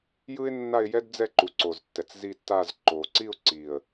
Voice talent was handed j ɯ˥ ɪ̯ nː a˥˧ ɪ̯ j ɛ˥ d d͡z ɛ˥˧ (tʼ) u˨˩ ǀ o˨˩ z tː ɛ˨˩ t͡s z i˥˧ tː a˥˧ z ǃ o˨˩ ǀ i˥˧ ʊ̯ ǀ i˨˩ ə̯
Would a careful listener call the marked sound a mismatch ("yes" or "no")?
yes